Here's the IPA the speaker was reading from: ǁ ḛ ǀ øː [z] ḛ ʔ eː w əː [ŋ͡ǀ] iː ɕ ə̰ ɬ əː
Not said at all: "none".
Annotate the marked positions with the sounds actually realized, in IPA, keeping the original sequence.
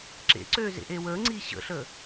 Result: z, ŋ͡ǀ

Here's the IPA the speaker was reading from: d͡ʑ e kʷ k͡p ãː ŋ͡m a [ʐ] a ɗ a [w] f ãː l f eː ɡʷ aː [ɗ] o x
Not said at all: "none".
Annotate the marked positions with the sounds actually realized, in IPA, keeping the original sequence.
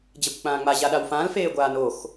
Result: ʑ, w, n

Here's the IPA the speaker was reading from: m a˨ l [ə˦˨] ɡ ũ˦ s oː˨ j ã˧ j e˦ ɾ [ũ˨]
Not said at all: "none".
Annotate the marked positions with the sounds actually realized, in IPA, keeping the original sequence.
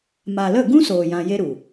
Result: ə˦˨, u˨

